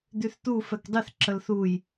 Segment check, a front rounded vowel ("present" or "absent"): present